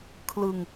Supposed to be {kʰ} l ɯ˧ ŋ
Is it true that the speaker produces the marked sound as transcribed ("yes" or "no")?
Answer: yes